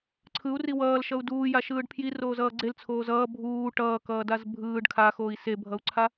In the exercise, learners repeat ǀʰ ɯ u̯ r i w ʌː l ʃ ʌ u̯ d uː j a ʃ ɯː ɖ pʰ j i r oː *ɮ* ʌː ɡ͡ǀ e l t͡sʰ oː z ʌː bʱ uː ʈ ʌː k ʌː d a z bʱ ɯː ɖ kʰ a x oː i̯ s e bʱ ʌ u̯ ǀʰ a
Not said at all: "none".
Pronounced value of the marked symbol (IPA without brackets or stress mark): z